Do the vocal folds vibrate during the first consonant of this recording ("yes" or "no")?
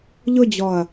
yes